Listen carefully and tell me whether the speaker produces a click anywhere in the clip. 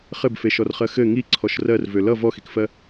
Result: yes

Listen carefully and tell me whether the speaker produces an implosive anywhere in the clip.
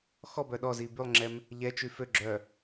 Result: yes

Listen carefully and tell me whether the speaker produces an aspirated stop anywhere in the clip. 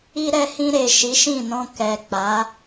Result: no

